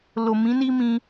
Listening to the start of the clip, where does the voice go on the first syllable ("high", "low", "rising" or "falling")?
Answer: low